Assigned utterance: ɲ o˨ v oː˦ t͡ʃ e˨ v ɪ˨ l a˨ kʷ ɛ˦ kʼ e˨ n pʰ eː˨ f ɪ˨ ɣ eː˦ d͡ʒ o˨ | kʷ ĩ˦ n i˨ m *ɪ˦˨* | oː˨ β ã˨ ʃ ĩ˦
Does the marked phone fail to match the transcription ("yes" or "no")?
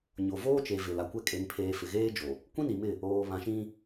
no